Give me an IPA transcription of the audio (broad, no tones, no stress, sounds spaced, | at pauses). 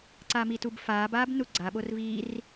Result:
ǀ a m i t u b f aː b aː b n u ɡ͡ǀ a ɓ o r v iː r